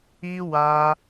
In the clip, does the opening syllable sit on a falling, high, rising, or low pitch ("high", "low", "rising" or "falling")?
high